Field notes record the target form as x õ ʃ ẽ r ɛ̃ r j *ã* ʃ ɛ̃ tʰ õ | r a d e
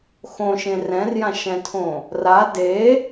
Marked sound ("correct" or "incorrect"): correct